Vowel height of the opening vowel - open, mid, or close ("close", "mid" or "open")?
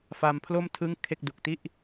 open